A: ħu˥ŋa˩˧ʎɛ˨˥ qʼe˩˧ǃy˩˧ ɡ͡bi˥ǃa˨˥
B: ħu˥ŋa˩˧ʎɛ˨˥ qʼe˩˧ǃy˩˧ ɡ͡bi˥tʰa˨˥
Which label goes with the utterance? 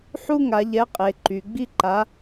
A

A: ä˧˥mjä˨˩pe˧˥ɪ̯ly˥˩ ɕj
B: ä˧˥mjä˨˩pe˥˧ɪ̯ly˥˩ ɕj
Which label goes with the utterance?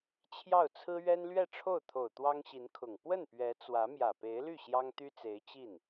A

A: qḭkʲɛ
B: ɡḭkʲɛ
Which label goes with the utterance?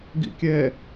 B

